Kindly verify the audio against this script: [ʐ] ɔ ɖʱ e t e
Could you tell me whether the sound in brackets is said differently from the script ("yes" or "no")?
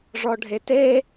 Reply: no